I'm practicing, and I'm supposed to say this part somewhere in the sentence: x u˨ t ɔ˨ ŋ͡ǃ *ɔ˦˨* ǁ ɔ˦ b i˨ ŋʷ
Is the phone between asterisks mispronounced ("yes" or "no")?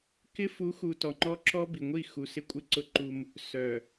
yes